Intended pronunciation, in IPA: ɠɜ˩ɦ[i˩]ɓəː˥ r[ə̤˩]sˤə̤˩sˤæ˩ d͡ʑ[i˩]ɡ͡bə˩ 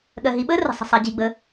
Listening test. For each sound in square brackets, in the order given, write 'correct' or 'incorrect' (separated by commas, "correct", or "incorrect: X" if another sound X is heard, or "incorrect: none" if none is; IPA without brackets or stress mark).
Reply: correct, correct, correct